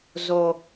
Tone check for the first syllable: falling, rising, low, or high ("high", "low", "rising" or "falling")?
low